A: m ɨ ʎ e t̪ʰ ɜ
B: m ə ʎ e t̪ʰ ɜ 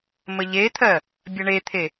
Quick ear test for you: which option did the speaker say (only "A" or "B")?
B